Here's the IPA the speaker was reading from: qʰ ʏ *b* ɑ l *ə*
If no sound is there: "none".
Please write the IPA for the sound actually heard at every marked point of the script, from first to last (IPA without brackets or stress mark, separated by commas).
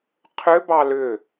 b, ʏ